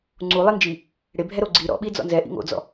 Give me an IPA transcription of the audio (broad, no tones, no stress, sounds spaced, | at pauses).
ŋ͡ǀ u lˠ i n d͡ʒ i | ɽ e bʱ ɛ ɾ o ɡ͡ǀ i ɾ ɔ̰ ɓ i d͡z ɔ̰ n z ɛ ʔ ḭ ŋ o̰ d͡z ɔ̰